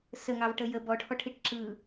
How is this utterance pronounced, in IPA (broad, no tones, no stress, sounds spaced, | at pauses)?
s ə ŋ ɑ v ʈ ə j ə b ɔ ʈʰ ɔ ʈʰ i ʈ ǁ ɯ